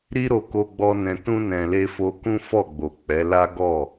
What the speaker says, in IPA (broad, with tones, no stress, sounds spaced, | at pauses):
ɾ i˦ ɾ o˧ k o˧ ɡ͡b ɔ˧ n ɛ̃˨ t ũ˧ n ɛ̃˨ l e˧ f o˧ k ũ˦ f ɔ˦˨ ɡ͡b o˨ k͡p ɛ˨˦ l a˦ ɡ ɔ˦˨